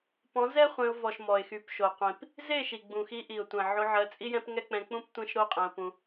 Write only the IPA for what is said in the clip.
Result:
pɔ̃˨˦zɛ˦ χʷẽ˧ʊ̯vɔ˨ʃ mɔ˨ɪ̯xy˨pʃo˨qʷĩ˨p | ze˦˨ʃi˨ɡ͡bũ˨ xi˧ʔi˨ʊ̯tʷɛ̃˨ ʕo˧ʕɜ˧t͡sʼi˦jɛ̃˦p ŋɛ˦k͡pɛ̃˧k͡pũ˦p tʷẽ˦ʃɾo˦qʼɛ̃˧ʊ̯pũ˧

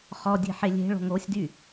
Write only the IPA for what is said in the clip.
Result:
χɔ dʲe̤ħelʲe̤ɭo̤ŋ osʲdy

